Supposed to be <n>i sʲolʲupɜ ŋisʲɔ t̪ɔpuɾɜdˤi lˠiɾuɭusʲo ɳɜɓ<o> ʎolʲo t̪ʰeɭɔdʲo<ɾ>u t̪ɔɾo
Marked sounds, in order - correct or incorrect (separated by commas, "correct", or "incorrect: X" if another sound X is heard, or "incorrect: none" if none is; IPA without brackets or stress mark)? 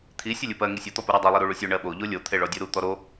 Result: incorrect: t̪ʰ, correct, correct